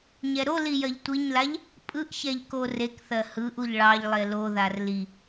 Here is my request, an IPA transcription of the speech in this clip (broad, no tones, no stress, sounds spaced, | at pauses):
ɲ ɛ ɾ o l i j ɜ ʎ tʷ i ɲ l a ʎ | pʼ ɯ ʔ ç ɛ ʎ k o r e k θ ɜ h ɯ ʔ u ʎ ɭ ɑ ʎ lˠ e l o ð a r l i